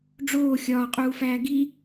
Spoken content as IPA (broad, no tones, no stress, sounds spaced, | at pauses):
ɖ͡ʐ oː xʲ ɒː qʼ uː f æː ɡ i